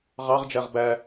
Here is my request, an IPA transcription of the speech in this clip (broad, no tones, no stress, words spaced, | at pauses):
ʁɑʁ d͡ʒæʁbæ